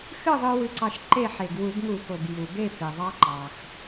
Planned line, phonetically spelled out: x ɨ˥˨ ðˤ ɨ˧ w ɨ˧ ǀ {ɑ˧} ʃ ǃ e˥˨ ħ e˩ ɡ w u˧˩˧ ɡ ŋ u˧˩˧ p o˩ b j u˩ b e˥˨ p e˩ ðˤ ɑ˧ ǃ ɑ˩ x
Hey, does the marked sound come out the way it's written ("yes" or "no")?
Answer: yes